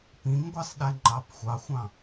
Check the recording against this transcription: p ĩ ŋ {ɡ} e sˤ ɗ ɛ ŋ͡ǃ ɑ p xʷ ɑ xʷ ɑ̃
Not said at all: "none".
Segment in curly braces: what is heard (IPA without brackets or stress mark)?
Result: ɡʷ